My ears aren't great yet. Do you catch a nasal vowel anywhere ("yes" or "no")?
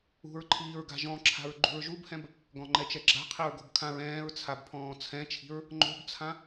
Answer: yes